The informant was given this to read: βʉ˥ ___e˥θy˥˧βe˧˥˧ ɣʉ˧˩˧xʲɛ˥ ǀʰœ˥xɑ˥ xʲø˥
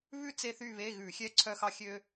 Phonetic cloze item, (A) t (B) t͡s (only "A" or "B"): B